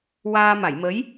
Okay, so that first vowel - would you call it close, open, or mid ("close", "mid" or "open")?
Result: open